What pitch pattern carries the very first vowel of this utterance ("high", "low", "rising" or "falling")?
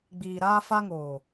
low